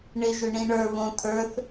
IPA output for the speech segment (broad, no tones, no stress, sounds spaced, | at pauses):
ɳ ɪ ʒ ʏ ɳ ĩ ɳ ə˞ β õ t̪ʰ ə˞ θ